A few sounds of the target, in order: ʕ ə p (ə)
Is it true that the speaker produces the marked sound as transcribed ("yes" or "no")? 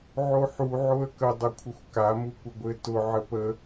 yes